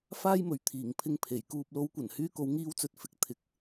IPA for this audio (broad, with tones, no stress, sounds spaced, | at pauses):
f aː˥ j m ɵ˨˥ ɥ t̪ʰ iː˨˩ ŋ pʰ ɪ˧ ŋ pʰ e˨˩ j k uː˨ p̚ l o˨˧ w kʷ ɐ˨˩ n h yː˧ k o˨˧ w ŋ iː˧ w t͡s ɵ˨ t̚ f ɪ˨ k̚ t̪ʰ ɪ˨˥ k̚